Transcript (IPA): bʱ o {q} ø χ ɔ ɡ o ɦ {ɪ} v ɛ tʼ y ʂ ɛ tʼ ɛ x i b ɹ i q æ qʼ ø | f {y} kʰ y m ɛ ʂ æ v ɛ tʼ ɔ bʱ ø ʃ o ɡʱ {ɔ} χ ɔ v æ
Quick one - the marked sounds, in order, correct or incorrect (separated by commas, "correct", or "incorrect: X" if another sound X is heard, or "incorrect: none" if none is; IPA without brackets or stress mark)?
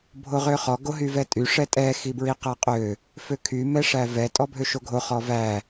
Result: incorrect: ʁ, incorrect: y, incorrect: ø, incorrect: o